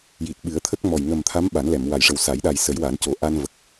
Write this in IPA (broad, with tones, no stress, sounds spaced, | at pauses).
j i˨˩ t̚ ɓ ɨ˨˩˦ ə̯ t̪ʰ ə˦˥ k̚ m ɔ˨˩ j ŋ ə˨˩ m t̪ʰ a˧˥ m ɓ a˨˩˦ n l ɛ˨˩˨ m w a˨˩˨ j ʂ ə˨˩ w s a˨˩˦ j ɗ a˨˩ j s ə˨˩˦ j w a˨˩˦ n c o˨˩˦ ʔ a˧ n v ə˨˩ k̚